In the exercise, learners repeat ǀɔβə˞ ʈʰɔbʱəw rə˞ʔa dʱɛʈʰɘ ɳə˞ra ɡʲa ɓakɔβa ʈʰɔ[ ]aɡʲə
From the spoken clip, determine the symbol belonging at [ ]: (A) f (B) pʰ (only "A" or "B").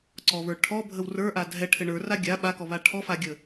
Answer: A